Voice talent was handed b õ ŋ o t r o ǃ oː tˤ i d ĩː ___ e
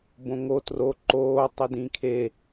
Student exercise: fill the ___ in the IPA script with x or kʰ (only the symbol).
kʰ